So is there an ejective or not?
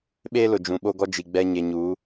no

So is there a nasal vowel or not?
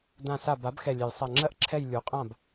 yes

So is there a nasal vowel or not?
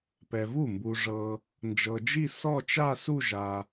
no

